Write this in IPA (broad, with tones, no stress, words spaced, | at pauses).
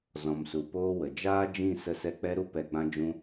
zɔ̃˨msu˨poː˦wə˨ d͡ʒaː˦d͡ʒĩ˦˨ sə˧sɛ˧ k͡pɛ˧ɾu˧ pɛ˨ɡ͡bã˧ d͡ʒũ˧